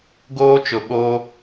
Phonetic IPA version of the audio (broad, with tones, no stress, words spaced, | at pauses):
ɡoː˦t͡ʃʊ˨ɓoː˦